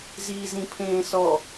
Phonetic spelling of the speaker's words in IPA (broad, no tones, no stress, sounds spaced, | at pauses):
z iː z ĩ pʰ ẽː s ɔ